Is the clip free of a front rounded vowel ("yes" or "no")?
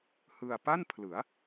yes